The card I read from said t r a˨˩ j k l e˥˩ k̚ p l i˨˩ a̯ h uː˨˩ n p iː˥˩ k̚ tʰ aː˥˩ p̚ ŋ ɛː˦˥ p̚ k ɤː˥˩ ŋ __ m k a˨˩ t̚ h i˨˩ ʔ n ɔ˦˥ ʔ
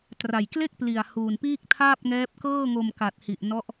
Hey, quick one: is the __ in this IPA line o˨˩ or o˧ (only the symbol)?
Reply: o˧